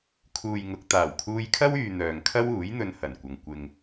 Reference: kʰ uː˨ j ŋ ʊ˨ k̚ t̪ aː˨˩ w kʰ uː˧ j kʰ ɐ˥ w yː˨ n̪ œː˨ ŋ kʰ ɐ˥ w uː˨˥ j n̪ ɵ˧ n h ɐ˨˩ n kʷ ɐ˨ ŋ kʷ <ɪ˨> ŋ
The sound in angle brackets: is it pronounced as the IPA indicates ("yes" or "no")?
yes